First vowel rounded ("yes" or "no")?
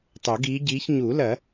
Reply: yes